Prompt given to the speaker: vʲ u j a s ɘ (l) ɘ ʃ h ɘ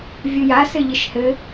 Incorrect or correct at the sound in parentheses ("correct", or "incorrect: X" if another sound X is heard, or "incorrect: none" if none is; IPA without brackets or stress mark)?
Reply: incorrect: ʎ